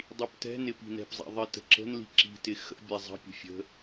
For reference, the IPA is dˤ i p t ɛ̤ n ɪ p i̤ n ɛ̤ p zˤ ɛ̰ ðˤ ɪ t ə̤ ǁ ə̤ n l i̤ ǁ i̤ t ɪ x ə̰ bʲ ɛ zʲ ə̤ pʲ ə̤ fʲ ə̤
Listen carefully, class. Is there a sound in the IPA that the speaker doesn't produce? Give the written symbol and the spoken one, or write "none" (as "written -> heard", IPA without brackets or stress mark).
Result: zʲ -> zˤ